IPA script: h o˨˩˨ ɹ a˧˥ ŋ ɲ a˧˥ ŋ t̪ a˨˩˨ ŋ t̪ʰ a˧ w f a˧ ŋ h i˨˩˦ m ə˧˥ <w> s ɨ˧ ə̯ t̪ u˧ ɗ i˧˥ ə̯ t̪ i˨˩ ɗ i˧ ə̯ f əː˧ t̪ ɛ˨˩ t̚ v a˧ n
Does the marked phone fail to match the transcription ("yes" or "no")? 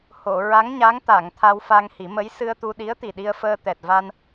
yes